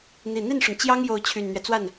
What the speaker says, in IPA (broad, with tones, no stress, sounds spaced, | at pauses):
n̪ i˨˩ n̪ i˥˩ n ʂ ʊ˩ ŋ t͡ɕ j ɑ˥ ŋ j o˧˥ ʊ̯ t͡ɕʰ y˨˩ n n̪ ɥ ɛ˦ t͡s w a˥˩ n